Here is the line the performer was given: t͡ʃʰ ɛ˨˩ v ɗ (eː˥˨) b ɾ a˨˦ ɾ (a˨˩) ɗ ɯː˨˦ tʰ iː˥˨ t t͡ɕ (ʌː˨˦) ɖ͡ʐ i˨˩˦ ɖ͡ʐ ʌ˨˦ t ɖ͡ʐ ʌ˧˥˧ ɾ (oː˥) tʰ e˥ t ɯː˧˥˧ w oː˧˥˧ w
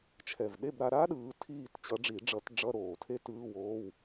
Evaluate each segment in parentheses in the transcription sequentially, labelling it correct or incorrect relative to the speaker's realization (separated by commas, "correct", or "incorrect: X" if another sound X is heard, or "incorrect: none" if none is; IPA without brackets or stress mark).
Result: incorrect: e˥˨, incorrect: a˥, incorrect: ʌ˨˦, incorrect: oː˨˩